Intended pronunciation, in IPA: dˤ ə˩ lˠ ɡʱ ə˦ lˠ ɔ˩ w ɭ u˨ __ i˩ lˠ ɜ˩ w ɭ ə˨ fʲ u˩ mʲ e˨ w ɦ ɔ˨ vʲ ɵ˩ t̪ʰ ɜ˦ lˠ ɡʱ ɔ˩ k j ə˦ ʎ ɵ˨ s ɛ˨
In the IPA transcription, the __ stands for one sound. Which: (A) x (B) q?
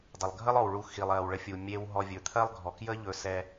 A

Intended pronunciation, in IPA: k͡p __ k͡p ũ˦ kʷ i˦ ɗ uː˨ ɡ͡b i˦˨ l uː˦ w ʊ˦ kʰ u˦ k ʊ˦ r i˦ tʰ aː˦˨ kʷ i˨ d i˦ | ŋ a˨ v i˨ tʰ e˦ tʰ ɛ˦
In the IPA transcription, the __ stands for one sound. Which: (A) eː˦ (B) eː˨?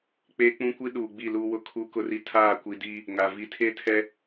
A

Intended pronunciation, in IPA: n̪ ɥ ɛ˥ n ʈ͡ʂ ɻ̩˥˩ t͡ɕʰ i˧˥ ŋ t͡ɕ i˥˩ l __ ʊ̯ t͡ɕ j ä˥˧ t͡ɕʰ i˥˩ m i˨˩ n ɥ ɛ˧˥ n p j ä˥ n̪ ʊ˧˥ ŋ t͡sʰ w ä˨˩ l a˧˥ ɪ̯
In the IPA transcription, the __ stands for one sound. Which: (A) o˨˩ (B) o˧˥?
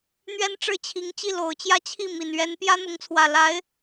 A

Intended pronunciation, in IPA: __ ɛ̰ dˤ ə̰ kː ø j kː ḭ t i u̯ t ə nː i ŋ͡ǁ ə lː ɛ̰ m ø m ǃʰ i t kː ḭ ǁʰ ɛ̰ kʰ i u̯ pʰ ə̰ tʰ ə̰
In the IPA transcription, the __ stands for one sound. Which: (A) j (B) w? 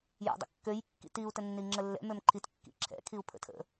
A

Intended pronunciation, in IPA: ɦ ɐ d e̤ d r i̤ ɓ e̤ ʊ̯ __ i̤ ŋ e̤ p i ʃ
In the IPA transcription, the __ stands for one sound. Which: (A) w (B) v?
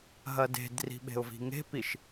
B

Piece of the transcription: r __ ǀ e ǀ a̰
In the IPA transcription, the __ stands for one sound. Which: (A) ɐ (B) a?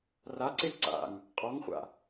B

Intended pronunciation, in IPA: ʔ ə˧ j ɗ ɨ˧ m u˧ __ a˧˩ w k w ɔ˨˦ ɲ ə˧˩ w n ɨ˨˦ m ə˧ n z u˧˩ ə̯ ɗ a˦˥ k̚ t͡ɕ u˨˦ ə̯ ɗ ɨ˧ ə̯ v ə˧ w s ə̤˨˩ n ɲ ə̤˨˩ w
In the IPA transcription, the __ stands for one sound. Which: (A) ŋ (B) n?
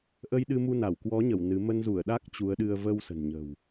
B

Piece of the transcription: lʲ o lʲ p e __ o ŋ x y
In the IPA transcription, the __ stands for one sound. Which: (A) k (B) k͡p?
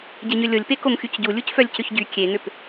A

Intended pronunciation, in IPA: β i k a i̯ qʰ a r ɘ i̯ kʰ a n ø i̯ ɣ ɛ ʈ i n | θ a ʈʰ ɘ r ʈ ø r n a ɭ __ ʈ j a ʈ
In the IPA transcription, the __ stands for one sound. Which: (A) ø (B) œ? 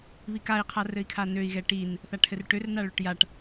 A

